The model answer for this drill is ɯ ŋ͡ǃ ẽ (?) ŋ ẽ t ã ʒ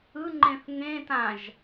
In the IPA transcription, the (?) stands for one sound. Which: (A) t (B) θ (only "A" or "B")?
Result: B